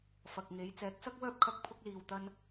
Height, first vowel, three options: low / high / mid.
low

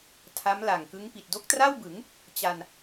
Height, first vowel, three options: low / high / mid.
low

